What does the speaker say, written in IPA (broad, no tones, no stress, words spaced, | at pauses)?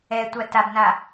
ɛtʷa tabna